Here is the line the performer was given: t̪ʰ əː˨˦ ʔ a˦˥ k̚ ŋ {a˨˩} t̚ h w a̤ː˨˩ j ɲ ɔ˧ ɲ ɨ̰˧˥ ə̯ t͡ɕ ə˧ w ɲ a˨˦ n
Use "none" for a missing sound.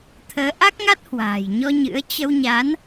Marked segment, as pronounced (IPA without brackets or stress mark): a˦˥